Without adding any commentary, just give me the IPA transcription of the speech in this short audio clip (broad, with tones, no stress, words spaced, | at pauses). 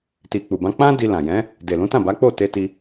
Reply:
ti˨k͡pu˨bã˧ k͡pã˦ di˧lã˨ jɛ̃˨˦ | de˨lũ˨˦tã˦˨ ba˨˦k͡po˦˨te˧ti˧